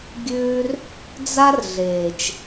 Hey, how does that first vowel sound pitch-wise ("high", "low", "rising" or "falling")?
high